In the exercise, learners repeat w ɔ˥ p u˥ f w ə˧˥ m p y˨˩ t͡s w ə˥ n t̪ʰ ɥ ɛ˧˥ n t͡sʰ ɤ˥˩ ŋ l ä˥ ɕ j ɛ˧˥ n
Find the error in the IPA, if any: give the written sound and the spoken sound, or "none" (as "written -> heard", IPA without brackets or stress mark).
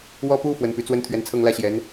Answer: m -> n